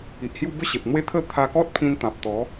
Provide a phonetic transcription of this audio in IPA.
i˨ ʔ h j u˥˧ b ə˥˧ ɕ e˨ p̚ n̪ w e˦ t̪ʰ ə˥˧ t̪ʰ a˧ k ɔ˦ t̚ pʰ ĩ˧ n t̪ ã˨ p̚ t̪ ɔ˨˦

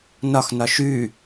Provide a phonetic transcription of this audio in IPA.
n ɒ x n ɒ ʃ ʉ

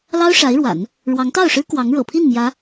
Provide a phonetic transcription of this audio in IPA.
l ɑ˥ ʊ̯ ʂ a˧˥ ɪ̯ ɻ w a̰˨˩˦ n | ɻ w ɑ˧˥ ŋ t̪ ɑ˥˩ ʊ̯ ʂ ɻ̩˥ k w ɑ˧˥ ŋ ɻ ɤ̰˨˩ pʰ i˥˩ n m j ä˧˥

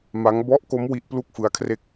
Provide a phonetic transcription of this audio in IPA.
m a˦˥ ŋ b ɔ˦˥ ʔ k o˦˥ m w i˦˥ ʔ p l u˥˩ k̚ f ɯ˦˥ a̯ kʰ r e˥˩ k̚

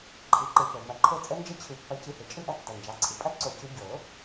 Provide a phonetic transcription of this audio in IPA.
ǃʰ ɯ˩˧˩ ǃ ɯ˨˩˦ p o˩ m ɐ˨˩˦ ǃʰ o˦˥ t͡sʼ ə˦˥ n d͡ʒ ə˥˧ t͡ɕʰ ɯ˨˩˦ pː ɐ˨˦ c ɨ˨˦ h e˩ t͡ʃʼ ɯ˥˧ ʔ ɐ˦˥ tː ɐ˩˧˩ n d͡ʒ ɑ˩˧˩ ǀʰ ɨ˩ pʼ ɐ˦˥ ǀ o˨˩˦ c ɯ˨˦ ɟ o˨˩˦

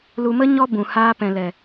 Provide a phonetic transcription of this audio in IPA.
l u˧ m ə˦ ɲ ɔ˦ b ũ˨ h aː˧ p ɛ̃˨ l ɛ˨

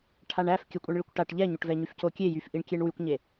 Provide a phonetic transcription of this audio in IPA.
ʈʰ a ɳ æ f kʲ ə kʷʼ ɛ ɳ ɭ i kʷ ʈ a ʈ ʎ ɛ ɲ o ʈ v ɛ ɲ y f c o kʲ e j y f ʔ i ɳ kʲ e ɳ w y kʷ ɲ e

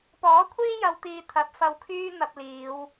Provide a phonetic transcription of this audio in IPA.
p ɔː˨˥ kʷʰ iː˥ j ɐ˨˧ w t̪ iː˨ t̪ʰ ɐ˨˥ p̚ f ɐ˧ w kʰ yː˥ n̪ ɐ˧ p̚ l iː˨˧ w

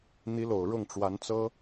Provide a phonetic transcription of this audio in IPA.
n̪ i˧˥ l o˨˩ ʊ̯ ɻ ʊ˥˩ ŋ ʈ͡ʂ w a˧˥ n t͡s ɤ˥

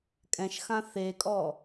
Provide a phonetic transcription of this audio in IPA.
kʼ ɛ̃ ʃ x ã θ e kʼ ɔ

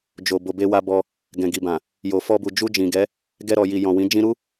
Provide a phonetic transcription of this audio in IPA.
d͡ʒ o˨ b o˨ b e˧ w a˧ b ɔ˧ | ɡ ɛ̃˨ ɡ i˨ b ã˨ | j o˨ f ɔ˧ b u˨ d͡ʒ u˧ d͡ʒ ĩ˨ ɡ ɛ˨˦ | ɡ ɛ˧ ɾ ɔ˨ j i˨ j ɔ̃˨ w ĩ˨˦ d͡ʒ ĩ˧ ɾ u˦

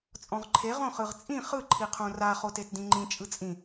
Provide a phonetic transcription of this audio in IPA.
t͡sʼ ɔ̃ ʁ ǃʰ e ʁ õ χ ɯ ʁ t͡sʼ ĩ χ ɯ ǃʰ i qʰ õ r a χ o t e t d ĩ ŋ͡ǃ ĩ t͡ʃʼ ɯ t͡sʼ ĩ

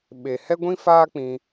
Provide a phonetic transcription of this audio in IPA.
ɓ e˨ h ɛ˦ ɡʷ ĩ˦ f aː˦ k͡p ĩ˧

